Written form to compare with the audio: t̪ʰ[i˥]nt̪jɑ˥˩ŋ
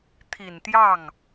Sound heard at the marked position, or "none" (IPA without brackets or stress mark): i˨˩